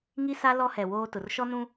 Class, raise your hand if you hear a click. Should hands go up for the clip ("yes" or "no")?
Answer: no